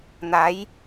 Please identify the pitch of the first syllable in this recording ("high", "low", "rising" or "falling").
rising